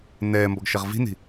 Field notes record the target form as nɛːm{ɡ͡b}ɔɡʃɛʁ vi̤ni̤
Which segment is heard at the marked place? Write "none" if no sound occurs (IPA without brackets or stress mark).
b